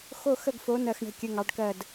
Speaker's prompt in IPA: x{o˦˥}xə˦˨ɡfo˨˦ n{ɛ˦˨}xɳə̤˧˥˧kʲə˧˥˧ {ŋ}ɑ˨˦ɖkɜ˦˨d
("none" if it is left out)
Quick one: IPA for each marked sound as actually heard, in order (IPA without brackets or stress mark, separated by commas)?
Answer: o˦˨, ɜ˦˨, ŋ